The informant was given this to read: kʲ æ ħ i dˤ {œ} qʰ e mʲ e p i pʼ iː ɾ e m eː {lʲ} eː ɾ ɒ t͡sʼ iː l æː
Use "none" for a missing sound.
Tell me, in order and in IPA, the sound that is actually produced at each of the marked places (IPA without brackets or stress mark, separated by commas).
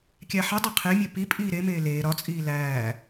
æ, l